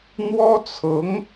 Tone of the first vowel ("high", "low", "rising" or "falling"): high